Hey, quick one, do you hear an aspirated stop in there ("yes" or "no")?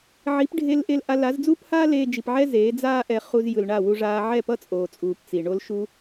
no